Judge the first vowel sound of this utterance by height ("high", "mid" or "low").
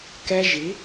mid